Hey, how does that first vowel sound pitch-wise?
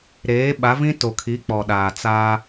rising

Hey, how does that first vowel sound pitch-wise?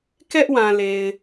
high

